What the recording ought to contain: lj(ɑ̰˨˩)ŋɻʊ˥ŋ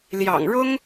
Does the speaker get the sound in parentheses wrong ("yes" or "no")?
no